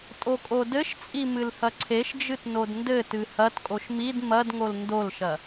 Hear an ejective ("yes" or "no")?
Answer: yes